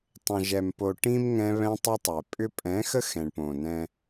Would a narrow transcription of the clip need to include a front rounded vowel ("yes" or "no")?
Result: yes